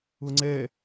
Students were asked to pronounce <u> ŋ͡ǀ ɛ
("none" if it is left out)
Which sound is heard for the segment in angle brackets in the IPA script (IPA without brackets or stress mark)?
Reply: ʊ